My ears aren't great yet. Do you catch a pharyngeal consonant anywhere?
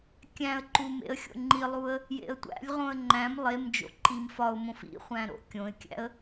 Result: no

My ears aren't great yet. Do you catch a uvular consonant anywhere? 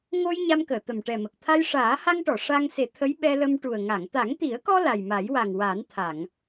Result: no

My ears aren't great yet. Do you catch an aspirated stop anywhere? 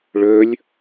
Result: no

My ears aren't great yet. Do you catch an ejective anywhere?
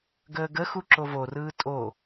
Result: yes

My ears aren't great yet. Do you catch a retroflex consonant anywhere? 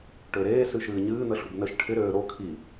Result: yes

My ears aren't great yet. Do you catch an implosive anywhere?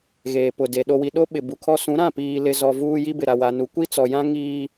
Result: yes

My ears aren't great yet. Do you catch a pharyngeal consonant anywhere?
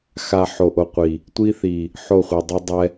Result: yes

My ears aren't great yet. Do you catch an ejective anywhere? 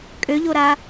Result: yes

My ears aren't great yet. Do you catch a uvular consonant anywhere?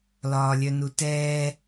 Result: no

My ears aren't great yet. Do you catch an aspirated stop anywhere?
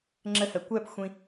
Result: no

